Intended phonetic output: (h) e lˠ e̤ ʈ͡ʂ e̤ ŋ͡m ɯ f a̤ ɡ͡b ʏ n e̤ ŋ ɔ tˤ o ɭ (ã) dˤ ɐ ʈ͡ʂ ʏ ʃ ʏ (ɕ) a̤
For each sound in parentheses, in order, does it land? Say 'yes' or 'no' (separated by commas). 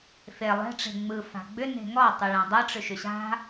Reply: no, yes, yes